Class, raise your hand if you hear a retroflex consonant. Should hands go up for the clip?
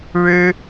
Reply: yes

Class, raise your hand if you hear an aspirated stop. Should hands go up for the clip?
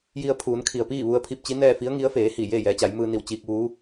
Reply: yes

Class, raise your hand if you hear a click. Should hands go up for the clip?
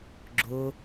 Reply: yes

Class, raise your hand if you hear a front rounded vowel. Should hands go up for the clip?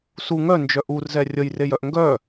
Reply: yes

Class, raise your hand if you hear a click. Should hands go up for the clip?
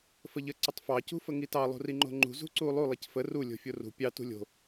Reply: yes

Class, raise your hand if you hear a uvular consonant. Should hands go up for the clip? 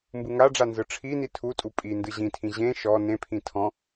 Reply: no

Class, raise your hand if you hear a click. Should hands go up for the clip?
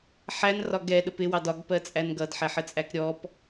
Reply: no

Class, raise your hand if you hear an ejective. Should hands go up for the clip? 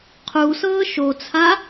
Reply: no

